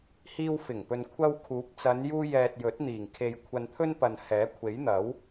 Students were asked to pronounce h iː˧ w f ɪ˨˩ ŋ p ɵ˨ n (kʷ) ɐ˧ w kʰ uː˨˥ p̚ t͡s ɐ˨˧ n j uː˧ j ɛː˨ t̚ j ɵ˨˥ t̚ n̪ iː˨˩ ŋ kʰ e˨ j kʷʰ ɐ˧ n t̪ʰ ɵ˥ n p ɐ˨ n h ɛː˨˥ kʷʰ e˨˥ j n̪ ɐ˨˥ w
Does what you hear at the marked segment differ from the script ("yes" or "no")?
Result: yes